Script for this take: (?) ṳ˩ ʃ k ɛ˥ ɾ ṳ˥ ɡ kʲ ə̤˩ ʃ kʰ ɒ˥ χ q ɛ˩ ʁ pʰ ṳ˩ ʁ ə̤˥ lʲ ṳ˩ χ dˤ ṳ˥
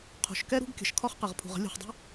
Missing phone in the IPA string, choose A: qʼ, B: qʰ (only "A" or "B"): B